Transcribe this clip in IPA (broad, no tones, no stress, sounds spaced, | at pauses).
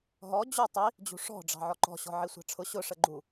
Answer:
ɦ ɔ d͡ʑ u tˤ i | d͡ʑ ṳ ʂ ɔ̤ ɖ͡ʐ ɑ̤ ʕ ɔ ǃ ɔ̤ ɕ ɔ̤ ʕ i sʷ ɑ̤ ʈ͡ʂʰ ʊ ɕ ʊ ʂ ə ɡ͡ǃ u